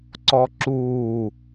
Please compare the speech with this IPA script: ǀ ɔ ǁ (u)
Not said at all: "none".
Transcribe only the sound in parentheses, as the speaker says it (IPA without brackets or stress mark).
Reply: uː